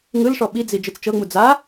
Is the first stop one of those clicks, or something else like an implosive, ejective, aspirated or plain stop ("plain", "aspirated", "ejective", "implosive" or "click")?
implosive